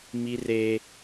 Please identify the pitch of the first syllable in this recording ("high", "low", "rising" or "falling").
high